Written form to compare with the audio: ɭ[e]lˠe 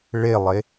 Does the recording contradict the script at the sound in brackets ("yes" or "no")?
no